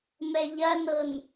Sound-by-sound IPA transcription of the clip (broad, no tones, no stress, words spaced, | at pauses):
mɛʎɐnɤn